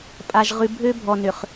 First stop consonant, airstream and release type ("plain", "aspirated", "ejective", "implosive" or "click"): ejective